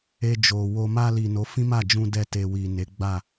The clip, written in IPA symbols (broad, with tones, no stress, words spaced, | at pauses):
e˧ d͡ʒo˨wo˧ ma˧li˨ no˨˦fĩ˦ma˦˨d͡ʒũ˧ dɛ˧te˨wi˨ ne˨˦ɡ͡ba˦˨